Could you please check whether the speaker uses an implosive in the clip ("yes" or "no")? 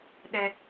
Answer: yes